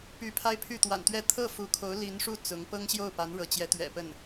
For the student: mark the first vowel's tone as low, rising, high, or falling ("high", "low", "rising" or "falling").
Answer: rising